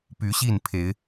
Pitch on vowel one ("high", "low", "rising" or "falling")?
rising